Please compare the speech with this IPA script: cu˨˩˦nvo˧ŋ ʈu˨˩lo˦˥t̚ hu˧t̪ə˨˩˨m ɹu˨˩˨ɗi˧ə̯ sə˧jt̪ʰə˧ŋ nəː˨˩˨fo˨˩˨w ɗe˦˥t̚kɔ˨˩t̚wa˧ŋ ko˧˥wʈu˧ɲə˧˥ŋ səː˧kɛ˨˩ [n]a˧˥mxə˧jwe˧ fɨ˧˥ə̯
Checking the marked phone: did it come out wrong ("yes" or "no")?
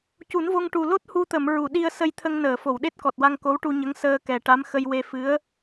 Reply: yes